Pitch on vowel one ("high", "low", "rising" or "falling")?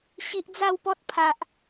high